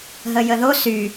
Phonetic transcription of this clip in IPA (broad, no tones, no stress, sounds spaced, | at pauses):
ɦ ə j ə ð o s y